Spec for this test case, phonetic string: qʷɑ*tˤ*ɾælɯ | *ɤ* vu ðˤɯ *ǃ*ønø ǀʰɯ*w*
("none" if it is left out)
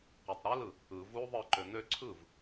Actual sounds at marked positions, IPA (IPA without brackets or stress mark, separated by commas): tˤ, ɯ, ǃ, v